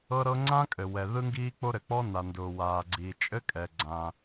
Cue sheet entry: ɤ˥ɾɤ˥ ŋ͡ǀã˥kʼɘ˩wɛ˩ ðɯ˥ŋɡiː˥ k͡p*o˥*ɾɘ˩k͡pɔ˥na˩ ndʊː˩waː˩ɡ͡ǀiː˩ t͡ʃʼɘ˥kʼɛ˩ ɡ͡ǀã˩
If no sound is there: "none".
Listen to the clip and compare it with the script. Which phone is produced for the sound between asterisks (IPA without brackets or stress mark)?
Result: o˥